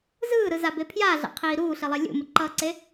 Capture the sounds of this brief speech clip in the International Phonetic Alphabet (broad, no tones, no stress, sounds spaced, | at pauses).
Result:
z ɯː ɾ ɯ z a b e pʰ j aː ɮ a̰ qʰ iː ɾ uː ɬ i lˠ e lʲ ṵ m ɯ ǃ ʌː ǀ e